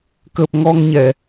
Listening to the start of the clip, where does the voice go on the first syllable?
low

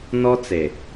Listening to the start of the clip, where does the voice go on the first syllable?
high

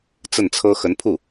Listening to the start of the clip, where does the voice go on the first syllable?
falling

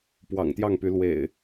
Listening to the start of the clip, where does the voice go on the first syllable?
low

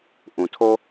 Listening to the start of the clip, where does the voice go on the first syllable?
low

